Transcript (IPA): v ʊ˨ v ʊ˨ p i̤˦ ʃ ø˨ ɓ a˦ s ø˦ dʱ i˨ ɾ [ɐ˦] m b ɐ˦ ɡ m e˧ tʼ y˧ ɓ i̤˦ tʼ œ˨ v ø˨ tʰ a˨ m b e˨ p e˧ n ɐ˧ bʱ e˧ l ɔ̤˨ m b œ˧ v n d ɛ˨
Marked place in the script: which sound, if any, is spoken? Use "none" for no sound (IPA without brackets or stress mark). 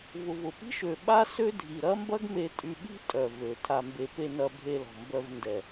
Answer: ɐ˦